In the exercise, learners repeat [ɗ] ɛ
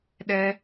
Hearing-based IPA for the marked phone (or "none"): ɗ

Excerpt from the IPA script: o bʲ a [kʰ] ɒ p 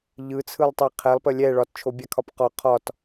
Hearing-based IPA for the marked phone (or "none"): kʰ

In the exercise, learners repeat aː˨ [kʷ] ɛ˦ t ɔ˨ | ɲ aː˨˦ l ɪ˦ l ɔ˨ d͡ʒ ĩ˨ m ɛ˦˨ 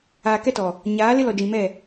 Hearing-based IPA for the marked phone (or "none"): k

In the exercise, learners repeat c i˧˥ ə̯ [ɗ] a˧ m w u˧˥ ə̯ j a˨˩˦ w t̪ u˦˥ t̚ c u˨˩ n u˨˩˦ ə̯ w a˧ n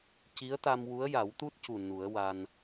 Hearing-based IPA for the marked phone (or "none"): t̪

